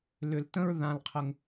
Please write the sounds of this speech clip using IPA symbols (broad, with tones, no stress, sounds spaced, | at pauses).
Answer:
l ʏ˨ l t ə̃˦ ɹ ð ã˨ l qʰ ə˨ ŋ